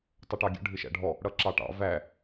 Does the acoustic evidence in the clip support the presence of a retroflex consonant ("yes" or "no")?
yes